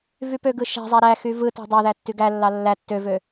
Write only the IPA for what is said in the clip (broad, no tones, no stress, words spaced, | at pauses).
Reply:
vypøɡɯ ʃæ̤zˤæ ɾæxy vɯtæ̤ dˤøðæ tːyɡælːɑ lːæ tːøvø